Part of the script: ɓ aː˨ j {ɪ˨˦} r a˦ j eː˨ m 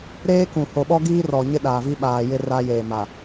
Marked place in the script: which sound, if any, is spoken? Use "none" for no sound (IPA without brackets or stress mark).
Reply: ɪ˦